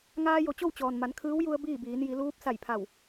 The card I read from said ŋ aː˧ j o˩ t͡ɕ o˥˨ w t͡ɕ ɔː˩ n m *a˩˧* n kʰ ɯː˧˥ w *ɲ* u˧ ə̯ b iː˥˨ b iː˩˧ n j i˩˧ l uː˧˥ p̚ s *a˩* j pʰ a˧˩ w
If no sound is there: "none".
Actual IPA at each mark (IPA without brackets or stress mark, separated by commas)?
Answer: a˩˧, j, a˧˩